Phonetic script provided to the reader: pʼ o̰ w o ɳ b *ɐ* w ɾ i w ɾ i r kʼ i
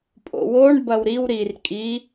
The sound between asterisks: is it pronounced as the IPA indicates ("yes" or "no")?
yes